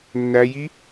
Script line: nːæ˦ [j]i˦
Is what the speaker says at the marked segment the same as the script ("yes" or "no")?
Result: yes